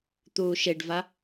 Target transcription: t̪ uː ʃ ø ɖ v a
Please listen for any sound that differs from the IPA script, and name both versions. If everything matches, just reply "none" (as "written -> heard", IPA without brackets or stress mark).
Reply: ø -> e